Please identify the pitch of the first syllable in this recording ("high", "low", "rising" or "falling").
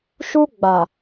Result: high